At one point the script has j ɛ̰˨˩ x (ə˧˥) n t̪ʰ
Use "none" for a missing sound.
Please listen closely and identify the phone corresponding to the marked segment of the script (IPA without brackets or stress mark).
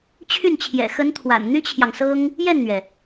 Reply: ə˧˥